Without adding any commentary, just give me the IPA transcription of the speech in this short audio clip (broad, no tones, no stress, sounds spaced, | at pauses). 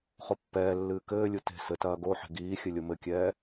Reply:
χ o pː ɛː lː ɨː k ɘː lʲ u t e̤ s ɘ t ɐː ɡ o ħ e̤ ɡ iː xʲ ɘ lʲ o m ɘ kʲ ɛː